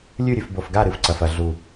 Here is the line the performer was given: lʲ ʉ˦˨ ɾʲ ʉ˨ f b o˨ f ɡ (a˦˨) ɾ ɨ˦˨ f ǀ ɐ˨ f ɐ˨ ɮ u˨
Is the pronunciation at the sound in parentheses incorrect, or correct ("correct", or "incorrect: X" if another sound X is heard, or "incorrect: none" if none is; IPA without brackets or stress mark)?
correct